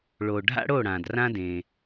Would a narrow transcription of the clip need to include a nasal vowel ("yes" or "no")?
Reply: yes